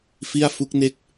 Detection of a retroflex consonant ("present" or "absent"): absent